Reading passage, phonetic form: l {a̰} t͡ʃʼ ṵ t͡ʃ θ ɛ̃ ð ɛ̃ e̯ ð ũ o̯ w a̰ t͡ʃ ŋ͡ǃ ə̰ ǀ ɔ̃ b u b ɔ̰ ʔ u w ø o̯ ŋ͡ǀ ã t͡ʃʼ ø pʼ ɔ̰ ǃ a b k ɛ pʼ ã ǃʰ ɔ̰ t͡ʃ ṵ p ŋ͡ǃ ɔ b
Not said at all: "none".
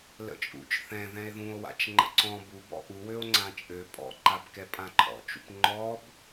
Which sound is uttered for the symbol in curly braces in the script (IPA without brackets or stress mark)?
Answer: ə̰